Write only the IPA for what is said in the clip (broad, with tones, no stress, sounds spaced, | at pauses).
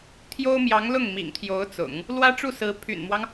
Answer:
t̪ʰ j o˥ ʊ̯ m j ɑ˧˥ ŋ l ʊ˥˩ ŋ m ḭ˨˩ ŋ t̪ʰ j o˧˥ ʊ̯ t͡s ʊ̰˨˩˦ ŋ | l w ä˥ ʈ͡ʂ u˥˩ s ɹ̩˧˥ pʰ y̰˨˩ n m w ɑ˦ ŋ